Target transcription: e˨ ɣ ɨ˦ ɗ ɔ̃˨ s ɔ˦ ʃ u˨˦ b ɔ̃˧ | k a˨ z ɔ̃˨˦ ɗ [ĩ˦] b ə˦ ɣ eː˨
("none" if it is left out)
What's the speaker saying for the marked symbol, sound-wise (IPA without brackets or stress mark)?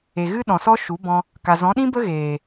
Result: ĩ˦